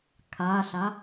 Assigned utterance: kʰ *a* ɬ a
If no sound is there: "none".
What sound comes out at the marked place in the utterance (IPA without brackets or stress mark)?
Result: a